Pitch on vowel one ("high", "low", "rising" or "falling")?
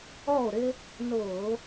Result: falling